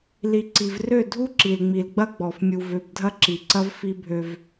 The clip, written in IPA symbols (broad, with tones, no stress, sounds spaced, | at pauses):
l i˨ ǀ i˨ v r ø˦˨ dʱ u˦ ǁ i˨ l ŋ͡m i˨ l ɡ͡b ɐ˦ ɡ͡b ɔ˨ f mʲ u˨ v ø˨ b dʱ ɐ˦ ǁ i˨ ǀ ɐ˦ v f i˦ bʱ ø˦ v